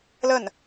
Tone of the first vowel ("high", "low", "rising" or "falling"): falling